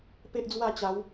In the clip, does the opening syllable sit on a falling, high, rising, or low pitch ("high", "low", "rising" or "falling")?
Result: high